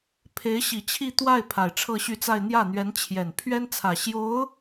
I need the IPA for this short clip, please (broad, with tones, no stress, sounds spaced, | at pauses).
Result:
pʰ e˧˥ ɪ̯ ɕ i˨˩ t͡ɕʰ i˥˧ t̪ w a˥˩ ɪ̯ pʰ a˨˩ ɪ̯ ʈ͡ʂʰ ɤ˥˧ ɕ y˥˧ t͡s a˥˧ ɪ̯ n̪ j ä˥˩ n̪ ɥ ɛ˧˥ n t͡ɕʰ j ɛ˨˩ n pʰ ɥ ɛ˥ n t͡sʰ ä˨˩ ɕ j o˧˥ ʊ̯